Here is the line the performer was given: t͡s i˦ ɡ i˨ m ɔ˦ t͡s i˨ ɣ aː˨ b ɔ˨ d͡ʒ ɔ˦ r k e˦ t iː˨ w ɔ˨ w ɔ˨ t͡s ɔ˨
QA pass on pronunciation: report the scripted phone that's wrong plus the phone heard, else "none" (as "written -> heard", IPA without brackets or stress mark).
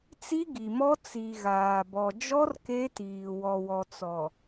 none